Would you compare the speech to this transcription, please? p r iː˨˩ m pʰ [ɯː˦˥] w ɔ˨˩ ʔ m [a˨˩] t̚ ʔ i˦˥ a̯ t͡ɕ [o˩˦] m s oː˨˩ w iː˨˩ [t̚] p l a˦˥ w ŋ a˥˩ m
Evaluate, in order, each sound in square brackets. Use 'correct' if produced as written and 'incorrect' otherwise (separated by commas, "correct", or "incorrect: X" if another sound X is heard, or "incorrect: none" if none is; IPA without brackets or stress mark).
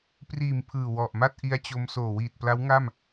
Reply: incorrect: ɯː˨˩, incorrect: a˥˩, incorrect: o˧, correct